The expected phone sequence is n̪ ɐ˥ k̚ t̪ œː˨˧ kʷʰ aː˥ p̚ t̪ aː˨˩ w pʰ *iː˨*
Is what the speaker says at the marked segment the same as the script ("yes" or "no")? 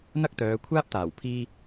no